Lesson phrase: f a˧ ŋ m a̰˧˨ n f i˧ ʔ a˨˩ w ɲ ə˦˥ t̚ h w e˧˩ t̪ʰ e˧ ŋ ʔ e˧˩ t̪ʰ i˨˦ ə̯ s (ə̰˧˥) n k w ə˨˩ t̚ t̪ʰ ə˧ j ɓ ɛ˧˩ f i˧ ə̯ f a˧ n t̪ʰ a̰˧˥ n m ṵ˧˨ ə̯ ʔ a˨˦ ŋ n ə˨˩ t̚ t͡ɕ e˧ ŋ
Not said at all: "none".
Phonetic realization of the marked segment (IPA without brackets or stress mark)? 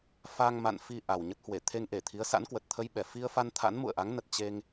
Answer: a̰˧˥